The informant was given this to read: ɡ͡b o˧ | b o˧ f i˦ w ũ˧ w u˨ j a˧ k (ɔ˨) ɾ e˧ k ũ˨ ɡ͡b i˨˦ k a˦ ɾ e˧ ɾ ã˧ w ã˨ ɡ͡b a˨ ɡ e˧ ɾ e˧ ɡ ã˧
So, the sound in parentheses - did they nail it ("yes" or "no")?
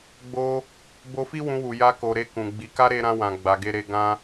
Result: no